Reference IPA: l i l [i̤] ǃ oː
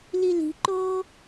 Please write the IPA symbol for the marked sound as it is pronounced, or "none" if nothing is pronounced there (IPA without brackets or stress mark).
i̤